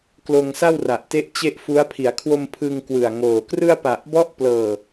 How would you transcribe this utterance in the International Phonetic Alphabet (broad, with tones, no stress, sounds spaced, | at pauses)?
k l oː˧ ŋ s a˥˩ w r a˨˩ ʔ t e˦˥ ʔ t͡ɕ e˥˩ ʔ f u˦˥ a̯ pʰ i˩˦ a̯ kʰ w o˧ m pʰ ɯ˧ ŋ k w ɯ˨˩ a̯ ŋ oː˨˩ k r ɯ˥˩ a̯ p a˨˩ ʔ b ɔ˦˥ ʔ p l ɤː˨˩